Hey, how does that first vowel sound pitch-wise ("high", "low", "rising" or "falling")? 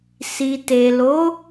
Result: low